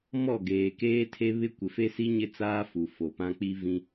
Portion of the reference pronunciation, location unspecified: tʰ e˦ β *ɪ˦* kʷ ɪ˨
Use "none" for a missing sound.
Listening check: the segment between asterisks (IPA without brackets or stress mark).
ɪ˦